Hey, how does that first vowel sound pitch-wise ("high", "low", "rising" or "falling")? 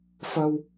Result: high